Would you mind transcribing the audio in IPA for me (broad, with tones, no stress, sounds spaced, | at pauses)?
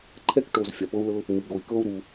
ǃʰ ɛ˥ k ʈ o˧ z fʲ a˧ p ɤ˥ u̯ l ɤ˥ | m i˧ ɡ o˧ i̯ k ɤ˥ u̯ ɾ u˧